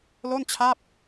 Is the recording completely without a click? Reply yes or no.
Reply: yes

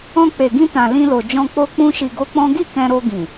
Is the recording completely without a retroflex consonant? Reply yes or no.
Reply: yes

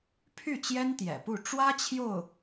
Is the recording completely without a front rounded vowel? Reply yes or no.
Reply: no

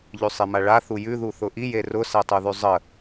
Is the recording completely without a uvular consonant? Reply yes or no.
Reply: yes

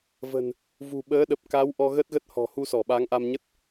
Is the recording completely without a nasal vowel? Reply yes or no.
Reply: yes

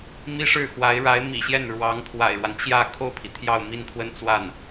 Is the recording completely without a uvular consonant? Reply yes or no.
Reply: yes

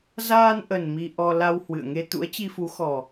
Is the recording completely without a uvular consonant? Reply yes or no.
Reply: yes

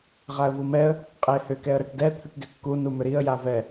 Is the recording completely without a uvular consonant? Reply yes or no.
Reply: no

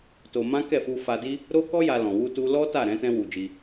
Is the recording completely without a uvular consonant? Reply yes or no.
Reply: yes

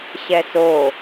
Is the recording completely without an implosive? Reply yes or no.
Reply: yes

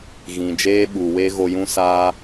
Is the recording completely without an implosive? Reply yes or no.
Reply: no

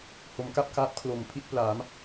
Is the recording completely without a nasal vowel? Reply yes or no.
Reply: yes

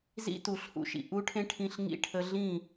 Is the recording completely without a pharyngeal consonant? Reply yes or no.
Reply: yes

